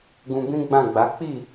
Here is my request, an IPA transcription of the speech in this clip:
ɡ ũ˧ b ĩ˦ ɡ͡b ã˦˨ ɡ͡b a˨˦ k͡p i˦˨

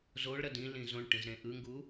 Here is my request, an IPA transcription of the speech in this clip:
z o ɭ ɾ ʌ d ĩ l ĩ z õ ɳ ʈ ĩ z ɾ ẽ ʔ ɯ ŋ ɡ u

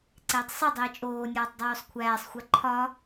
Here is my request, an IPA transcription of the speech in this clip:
ǀ eː tˤ sˤ i dˤ iː t͡ʃʼ oː nʲ ɒː tˤ dˤ uː sˤ kʷʰ æː sˤ xʷ æ ǃʰ ɒ

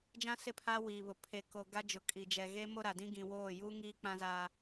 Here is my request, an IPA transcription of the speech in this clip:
d͡ʒ ã˦ s ɪ˦˨ pʰ aː˦ w iː˨ β ʊ˨ pʰ e˨ k o˨ ɡ a˦ d͡ʒ ʊ˨ kʼ i˨ d͡ʒ ɛ˨ ɣ e˦ m o˦ ɾ a˨ d ĩ˦ ɡ ĩ˨ w oː˦˨ j uː˦ ŋ iː˦ k͡p ã˦ z aː˦

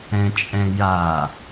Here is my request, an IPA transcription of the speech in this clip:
ɛ̃ t͡ʃʼ ɛ̃ j a

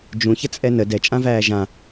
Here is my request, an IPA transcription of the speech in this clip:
d͡ʒ ũ ç ə t͡sʼ ɛ n ə d ɛ t͡ʃʼ ã v æː ʒ ã

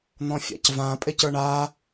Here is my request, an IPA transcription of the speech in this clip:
n̪ ɔ̃ fʲ a̰ c v ã pʼ e c ə˞ ɳ a

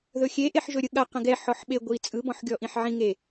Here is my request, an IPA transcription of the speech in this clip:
ð ɵ xʲ e ʔ e ħ ʒ ɵ ɾʲ ɯ ɠ a q ə̃ ɡ ɛ ħ ɔ ħ ɓ e ɡʷ i t͡sʼ ɯ b ɔ̃ ħ ɡʲ ɔ ʔ ĩ ħ ʕ ĩ ŋ e

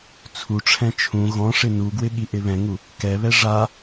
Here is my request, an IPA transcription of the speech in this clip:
t͡sʰ u ʈ͡ʂʰ ɛ̃ t͡ʃʰ ũ ɣ ɔ̃ ʂ ɪ n u ɡ w ɪ ɠ i ʔ ɪ β ɛ̃ ŋ u | k ɛ β ɛ ʐ a

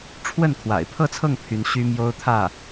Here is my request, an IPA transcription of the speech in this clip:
ʈ͡ʂʰ w ə˥˩ n kʰ w a̰˨˩ ɪ̯ pʰ ɤ˥˧ t͡sʰ ɤ˥˩ ŋ pʰ y˥ n ɕ y˥ m j o˥ ʊ̯ t̪ʰ ä˥˩

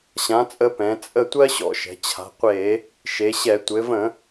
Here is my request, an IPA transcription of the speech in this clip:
ɕ ã˩˧ t͡sʼ ə˧˩˧ p ɛ̃˩˧ t͡sʼ ə˥˩ tʷ ɜ˥ ɕ ɔ̰˧˩˧ ʃ ɛ̤˩˧ t͡ɕʰ a̤˩˧ qʷ e˧˩˧ | ʃ e˩˧ ɕ ɛ˧˩˧ tʷ ɘ˩˧ v ə̃˧˩˧

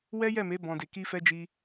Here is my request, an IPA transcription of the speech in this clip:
w ɛ˦ j ɛ˦˨ m e˨˦ b ɔ̃˦ d e˧ k i˦ f ɛ˦ d͡ʒ i˧

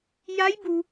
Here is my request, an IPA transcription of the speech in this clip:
j a˧˥ j b u˩

